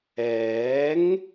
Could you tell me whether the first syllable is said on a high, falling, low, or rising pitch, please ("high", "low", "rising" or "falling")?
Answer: rising